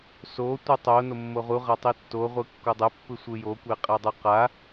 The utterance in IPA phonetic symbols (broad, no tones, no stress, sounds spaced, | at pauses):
s o tʷ ɯ tˤ o n o mː o ʁ u ʁ a tˤ i tː o ʁʷ ɯ kː o dˤ ɛ pː ɯ sʷ ɯ j o kʷ e qʼ ɛ dˤ u q a